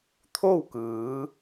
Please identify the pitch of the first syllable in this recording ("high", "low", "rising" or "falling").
falling